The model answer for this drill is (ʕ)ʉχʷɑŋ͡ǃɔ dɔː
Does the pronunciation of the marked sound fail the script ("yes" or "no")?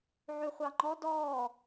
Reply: no